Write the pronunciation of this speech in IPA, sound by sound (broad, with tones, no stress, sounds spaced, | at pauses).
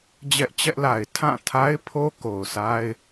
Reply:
d͡ʑ ɛ˦ ʔ t͡ɕ ɛ˦ ʔ l a˨ ɪ̯ tʰ ã˦˨ tʰ a˦ ɪ̯ pʰ o˦ k o˨ ʊ̯ sʰ a˦ ɪ̯